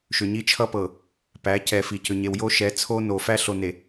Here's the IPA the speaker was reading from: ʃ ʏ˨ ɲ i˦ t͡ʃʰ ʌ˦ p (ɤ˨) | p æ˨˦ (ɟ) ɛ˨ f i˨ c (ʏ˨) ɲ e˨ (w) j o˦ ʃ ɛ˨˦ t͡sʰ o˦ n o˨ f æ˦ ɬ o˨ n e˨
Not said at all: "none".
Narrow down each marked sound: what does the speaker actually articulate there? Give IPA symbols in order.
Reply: ɤ˨, c, ʏ˨, w

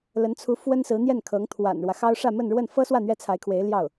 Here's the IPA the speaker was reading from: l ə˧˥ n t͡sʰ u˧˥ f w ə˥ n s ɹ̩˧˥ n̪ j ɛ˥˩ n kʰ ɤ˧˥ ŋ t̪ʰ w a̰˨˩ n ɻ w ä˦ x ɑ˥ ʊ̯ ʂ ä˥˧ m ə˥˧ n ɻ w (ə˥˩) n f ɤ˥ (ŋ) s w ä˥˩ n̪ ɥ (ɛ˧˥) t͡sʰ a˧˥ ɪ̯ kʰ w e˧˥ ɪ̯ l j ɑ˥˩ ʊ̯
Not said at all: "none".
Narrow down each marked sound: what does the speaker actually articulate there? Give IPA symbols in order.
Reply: ə˥˩, none, ɛ˥

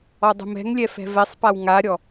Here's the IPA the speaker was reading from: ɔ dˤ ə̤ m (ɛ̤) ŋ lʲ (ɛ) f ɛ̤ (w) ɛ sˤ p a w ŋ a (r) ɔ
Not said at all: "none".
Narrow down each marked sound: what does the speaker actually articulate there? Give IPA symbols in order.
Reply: ɛ̤, ɛ, v, ɾʲ

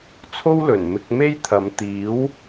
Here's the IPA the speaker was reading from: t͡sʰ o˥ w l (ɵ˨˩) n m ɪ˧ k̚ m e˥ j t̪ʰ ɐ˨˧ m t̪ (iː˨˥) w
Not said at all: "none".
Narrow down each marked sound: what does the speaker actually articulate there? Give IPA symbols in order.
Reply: ɵ˨˩, iː˨˥

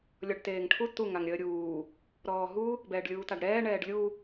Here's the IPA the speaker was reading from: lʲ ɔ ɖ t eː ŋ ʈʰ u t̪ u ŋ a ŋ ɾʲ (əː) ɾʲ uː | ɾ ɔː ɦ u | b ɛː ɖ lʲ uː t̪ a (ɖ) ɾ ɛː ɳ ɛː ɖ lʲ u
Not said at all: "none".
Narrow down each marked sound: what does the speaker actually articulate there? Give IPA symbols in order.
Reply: əː, ɖ

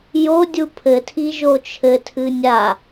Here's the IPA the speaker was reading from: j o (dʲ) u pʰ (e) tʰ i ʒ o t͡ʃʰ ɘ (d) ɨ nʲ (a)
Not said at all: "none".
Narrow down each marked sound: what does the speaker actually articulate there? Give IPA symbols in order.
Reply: dʲ, ɘ, tʰ, a

